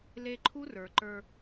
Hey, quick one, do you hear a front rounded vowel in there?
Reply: no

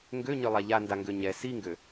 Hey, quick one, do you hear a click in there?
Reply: no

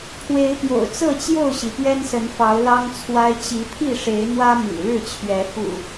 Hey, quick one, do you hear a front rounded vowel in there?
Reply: no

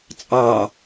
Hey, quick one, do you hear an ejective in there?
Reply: yes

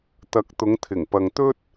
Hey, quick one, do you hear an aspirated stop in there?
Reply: yes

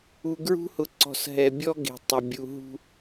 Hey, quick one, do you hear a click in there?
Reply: yes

